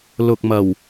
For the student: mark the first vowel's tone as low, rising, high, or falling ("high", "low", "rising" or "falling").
low